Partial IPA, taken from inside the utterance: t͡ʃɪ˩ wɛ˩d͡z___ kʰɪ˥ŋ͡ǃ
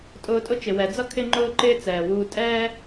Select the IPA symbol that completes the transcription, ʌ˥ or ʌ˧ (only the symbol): ʌ˥